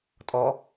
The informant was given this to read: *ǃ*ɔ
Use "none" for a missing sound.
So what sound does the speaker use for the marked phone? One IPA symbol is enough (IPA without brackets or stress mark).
tʼ